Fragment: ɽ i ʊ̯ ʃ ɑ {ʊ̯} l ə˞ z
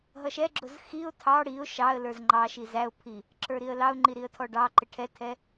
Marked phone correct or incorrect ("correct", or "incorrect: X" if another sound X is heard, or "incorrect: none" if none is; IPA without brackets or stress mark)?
incorrect: ə̯